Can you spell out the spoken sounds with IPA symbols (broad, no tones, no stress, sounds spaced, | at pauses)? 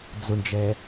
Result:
d͡z ʊ ɳ d͡ʒ ɛ